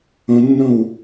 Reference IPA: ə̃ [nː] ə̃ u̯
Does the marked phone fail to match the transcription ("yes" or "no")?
no